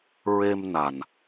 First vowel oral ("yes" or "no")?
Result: yes